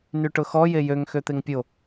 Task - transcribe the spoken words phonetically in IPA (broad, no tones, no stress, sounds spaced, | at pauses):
n y ʈ ʊ x ɔ j e j ø ŋ x ø t̪ e ŋ pʲ o